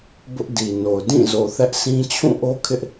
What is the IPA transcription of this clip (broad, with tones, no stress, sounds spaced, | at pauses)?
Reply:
b ʊ˦ ʔ d i˨ n o˨ ʊ̯ d ĩ˦˨ z o˨ θ ɛ˦ ʔ sʰ ĩ˦ t͡ɕʰ ũ˦˨ ʔ o˦ kʰ ɪ˦ ʔ